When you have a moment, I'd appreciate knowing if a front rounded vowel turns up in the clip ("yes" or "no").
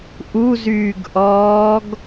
yes